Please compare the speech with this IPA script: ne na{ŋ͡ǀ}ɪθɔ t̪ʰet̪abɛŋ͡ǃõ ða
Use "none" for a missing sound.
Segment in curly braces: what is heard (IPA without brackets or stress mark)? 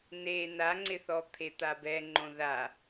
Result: ŋ͡ǀ